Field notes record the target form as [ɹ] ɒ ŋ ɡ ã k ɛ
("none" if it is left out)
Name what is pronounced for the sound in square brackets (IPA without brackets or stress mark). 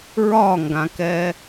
ɹ